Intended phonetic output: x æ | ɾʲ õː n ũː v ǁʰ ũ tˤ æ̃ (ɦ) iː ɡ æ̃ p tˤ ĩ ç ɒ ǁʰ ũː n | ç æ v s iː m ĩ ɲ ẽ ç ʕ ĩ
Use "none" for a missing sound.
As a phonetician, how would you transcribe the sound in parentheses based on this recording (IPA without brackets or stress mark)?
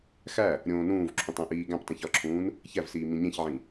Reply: ʔ